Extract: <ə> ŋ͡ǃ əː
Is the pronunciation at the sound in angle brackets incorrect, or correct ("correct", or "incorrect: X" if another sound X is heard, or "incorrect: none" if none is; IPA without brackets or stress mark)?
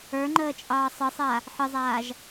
incorrect: ə˞